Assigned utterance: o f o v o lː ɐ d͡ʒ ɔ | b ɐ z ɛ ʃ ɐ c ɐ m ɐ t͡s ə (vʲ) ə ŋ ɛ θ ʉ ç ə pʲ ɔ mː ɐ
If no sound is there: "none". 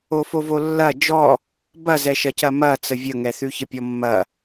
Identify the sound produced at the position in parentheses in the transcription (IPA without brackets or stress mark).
vʲ